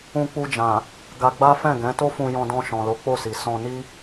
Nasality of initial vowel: nasal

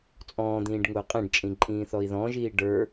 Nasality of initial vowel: nasal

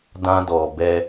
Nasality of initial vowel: nasal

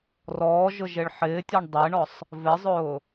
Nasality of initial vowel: oral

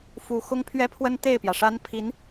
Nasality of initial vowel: oral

